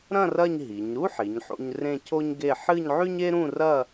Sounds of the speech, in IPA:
ɾ ɐ̃˥˧ r ɐ˥˧ ɲ ɦ i˩˧ ɲ ɾ u˥ ħ i˩˧ ɲ ħ o̰˧ ɲ r ẽ˥˧ cʰ o˥ ɲ ɡ e˥˧ ħ ɨ˥˧ ɲ ʕ ʉ˥ ɲ e˥ ɾ ũ˥˧ r ɐ˥˧

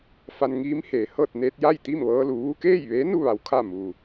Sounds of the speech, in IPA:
f a˧ n ŋ iː˧˥ m h eː˩ h ɤː˥˨ t̚ n eː˧ t̚ j a˥˨ j t̪ i˥˨ m ʋ ɤː˧ l u˩˧ ʋ u˧ k eː˥˨ j ʋ eː˧˥ n u˥˨ ʋ a˩˧ w kʰ a˥˨ m uː˩

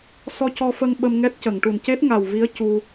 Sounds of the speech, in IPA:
s ɔ˧ c ɔ˧ f ə˧ ŋ ɓ ə˧ m ŋ ɛ˦˥ t̚ c ə˨˩˨ ŋ ʈ u˨˩ n c e˦˥ t̚ ŋ a˨˩ w v i˧˥ ə̯ c u˧

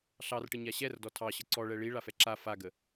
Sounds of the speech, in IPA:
ɬ ɑ r ʈ ə ɲ a ɕ ɛ r d ɔ tʰ ɑ ɕ ə ǀ ɔ ɭ ɛ ɭ i ɭ a f ɛ ǁ a f a ɡ ə

